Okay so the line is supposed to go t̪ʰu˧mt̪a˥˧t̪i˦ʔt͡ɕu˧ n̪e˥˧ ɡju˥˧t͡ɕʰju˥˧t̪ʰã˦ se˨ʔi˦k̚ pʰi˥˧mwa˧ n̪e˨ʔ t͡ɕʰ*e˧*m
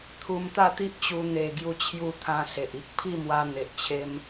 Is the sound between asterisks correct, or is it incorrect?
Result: incorrect